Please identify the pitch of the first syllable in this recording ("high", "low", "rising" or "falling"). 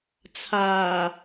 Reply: low